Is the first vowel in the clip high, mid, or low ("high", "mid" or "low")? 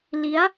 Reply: high